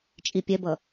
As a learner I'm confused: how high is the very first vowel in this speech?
high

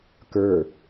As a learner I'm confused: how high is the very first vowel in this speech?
mid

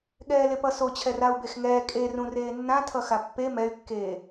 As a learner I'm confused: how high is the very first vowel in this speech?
mid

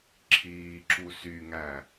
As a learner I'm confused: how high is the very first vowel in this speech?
high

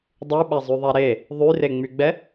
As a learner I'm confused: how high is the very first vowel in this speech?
high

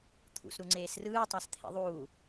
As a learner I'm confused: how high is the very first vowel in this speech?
high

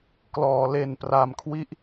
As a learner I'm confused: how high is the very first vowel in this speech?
mid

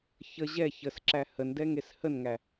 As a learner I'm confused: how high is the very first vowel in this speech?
mid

